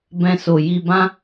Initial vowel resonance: nasal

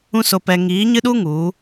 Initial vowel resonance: nasal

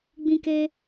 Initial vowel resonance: nasal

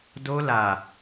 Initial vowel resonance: oral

